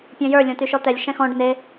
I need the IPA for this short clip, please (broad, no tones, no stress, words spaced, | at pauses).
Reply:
pʲɔ̃jə˞ lʲɔ̃tyʃɔt̪ɛlʲ ʃɛ̃xɔ̃ɖ ne